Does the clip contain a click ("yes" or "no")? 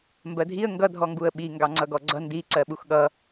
yes